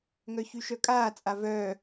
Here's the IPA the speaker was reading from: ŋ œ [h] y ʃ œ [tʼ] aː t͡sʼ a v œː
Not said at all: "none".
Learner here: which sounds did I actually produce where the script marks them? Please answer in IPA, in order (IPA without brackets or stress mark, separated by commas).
ç, kʼ